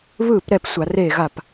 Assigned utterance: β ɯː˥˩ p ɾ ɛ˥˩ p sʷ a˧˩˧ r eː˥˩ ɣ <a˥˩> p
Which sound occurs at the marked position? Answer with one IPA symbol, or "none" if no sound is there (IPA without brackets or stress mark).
a˥˩